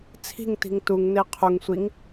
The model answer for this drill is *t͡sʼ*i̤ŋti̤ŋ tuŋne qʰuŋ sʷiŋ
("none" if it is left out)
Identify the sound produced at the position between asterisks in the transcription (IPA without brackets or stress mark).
t͡sʰ